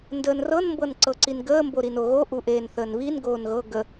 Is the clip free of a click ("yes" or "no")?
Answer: no